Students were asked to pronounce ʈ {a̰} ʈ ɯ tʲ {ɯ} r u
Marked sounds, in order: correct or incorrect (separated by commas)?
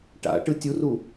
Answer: correct, incorrect